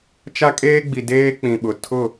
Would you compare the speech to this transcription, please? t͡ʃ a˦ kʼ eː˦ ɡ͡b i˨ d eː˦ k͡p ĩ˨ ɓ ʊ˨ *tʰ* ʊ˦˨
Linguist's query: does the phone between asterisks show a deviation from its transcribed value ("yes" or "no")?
no